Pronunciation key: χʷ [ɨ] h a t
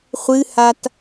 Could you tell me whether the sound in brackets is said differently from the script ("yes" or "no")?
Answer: no